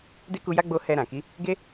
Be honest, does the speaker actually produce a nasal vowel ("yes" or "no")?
yes